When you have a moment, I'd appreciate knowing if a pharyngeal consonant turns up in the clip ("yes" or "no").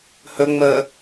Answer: no